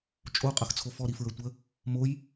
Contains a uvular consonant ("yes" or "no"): yes